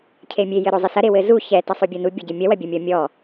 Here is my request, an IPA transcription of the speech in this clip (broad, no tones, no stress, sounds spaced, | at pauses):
cʰ e mʲ e j ɘ ɾ o zˤ i s ɐ ɾ e w ɘ z u ç ɛ t ɐ sˤ o bʲ o n u bʲ a ɟ ɘ mʲ ɐ w ɐ bʲ ɐ mʲ ɔ mʲ ɔ